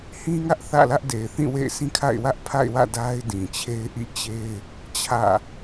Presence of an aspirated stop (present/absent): present